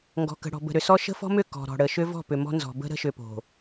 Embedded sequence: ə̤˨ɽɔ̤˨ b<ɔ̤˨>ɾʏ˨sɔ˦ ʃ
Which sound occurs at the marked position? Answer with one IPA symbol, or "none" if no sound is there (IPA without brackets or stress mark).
ə̤˨